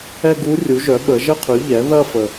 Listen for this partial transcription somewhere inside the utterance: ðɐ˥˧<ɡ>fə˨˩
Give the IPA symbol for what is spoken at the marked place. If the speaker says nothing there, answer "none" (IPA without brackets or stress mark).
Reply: none